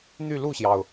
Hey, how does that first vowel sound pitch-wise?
falling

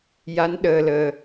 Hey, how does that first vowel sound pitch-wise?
rising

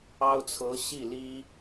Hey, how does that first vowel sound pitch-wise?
high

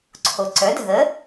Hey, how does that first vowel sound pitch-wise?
low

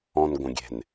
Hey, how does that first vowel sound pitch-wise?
low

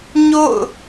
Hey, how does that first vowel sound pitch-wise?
falling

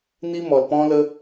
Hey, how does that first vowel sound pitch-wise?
high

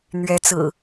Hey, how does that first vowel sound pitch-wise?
rising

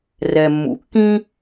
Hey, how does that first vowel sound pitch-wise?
low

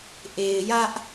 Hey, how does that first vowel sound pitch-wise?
low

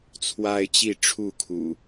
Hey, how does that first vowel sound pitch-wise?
high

